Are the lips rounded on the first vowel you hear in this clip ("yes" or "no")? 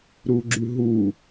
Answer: yes